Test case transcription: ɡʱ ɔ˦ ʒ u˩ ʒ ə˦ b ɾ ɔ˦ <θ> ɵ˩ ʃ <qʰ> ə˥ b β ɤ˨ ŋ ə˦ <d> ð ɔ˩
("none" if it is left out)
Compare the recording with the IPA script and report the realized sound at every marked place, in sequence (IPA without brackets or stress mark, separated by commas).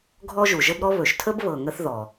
β, tʰ, θ